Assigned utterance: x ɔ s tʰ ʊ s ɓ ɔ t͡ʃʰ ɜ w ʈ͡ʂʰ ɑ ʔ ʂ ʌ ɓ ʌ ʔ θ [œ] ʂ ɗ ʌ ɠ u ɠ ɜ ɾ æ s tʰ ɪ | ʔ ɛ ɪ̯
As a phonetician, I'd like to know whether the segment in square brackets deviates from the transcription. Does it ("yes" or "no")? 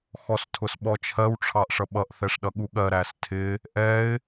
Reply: yes